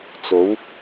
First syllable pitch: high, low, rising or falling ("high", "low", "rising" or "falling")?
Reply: rising